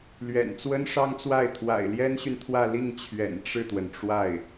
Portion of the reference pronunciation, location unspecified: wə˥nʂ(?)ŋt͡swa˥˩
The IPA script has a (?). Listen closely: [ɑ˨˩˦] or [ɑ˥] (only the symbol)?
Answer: ɑ˥